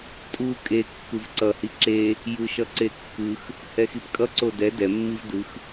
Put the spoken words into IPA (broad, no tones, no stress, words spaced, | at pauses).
tʼu kʼe kːɯvǀʌ hiǁe | jɯʃʌǀekːɯx | hɛxipkʼʌ ǀodɛ dɛ mːivdɯx